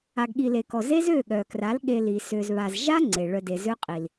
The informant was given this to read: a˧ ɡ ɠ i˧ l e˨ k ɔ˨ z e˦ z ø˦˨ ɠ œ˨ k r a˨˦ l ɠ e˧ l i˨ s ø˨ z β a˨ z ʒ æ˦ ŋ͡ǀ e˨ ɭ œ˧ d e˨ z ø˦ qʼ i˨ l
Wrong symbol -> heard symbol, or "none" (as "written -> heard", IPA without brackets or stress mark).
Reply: æ˦ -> a˦